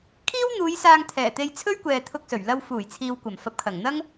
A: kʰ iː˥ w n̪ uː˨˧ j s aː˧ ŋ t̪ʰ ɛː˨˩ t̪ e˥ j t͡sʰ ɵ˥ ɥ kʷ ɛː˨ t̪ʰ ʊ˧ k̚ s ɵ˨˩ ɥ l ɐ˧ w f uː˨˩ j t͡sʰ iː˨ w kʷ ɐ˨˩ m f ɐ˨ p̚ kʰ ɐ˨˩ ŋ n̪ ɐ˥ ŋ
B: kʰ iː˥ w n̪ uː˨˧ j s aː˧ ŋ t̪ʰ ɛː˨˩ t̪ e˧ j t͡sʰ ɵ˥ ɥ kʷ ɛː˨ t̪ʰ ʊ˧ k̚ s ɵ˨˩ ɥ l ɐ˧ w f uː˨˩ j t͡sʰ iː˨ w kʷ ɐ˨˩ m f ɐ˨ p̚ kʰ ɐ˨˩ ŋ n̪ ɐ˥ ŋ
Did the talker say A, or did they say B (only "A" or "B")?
B